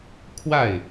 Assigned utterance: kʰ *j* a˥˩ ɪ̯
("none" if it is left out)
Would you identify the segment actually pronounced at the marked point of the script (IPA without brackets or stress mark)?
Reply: w